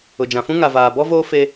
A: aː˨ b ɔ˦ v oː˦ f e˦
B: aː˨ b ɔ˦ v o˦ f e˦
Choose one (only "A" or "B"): A